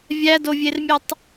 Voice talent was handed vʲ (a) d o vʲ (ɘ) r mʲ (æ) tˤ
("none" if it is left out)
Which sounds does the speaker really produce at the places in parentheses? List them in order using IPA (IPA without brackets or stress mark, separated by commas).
æ, e, ɛ